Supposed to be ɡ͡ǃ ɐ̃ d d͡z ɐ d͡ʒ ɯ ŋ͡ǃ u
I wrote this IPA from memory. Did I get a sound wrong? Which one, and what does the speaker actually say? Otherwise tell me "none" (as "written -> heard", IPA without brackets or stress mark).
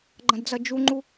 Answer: ɯ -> u